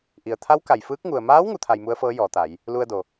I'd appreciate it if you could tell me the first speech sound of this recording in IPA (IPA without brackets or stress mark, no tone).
ʔ